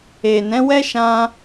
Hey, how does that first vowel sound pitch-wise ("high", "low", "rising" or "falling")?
low